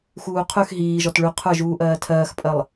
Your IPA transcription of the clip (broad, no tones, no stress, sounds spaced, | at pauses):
x uː qʰ ʉ x ɦ iː ʒ ɔ t ɭ ʉ qʰ ə˞ ʒ uː ʔ ɜː tʰ ɜː x pʼ ɜ lˠ